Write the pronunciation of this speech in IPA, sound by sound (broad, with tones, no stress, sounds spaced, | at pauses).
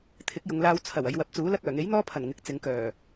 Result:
t̪ʰ ɪ˨˥ k̚ j ʊ˨˧ ŋ l aː˧ w t͡sʰ ɐ˨˩ w ɐ˨˧ j w ɐ˨˥ p̚ t͡s uː˨˥ l ɐ˥ k̚ œː˨˩ ŋ e˨˥ j n̪ ɔː˥ pʰ ɐ˨˩ n ŋ ɪ˨˥ k̚ t͡s ɪ˨˧ ŋ k œː˨˩